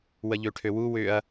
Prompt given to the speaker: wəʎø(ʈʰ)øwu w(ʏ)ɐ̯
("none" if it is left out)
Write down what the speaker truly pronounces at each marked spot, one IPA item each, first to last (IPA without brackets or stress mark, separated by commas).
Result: ʈʰ, ʏ